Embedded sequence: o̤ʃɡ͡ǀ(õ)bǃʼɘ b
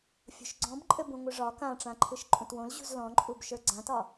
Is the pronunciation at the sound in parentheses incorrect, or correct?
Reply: incorrect